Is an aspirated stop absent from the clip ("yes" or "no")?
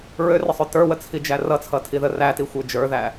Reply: no